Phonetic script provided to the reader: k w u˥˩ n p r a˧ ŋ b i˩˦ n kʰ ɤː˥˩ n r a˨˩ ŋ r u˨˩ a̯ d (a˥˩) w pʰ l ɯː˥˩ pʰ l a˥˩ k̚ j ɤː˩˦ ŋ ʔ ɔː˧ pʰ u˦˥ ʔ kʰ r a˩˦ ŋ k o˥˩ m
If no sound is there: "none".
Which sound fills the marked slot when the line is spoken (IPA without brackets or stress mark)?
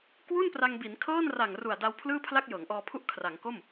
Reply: a˧